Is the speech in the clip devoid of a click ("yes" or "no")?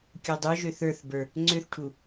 no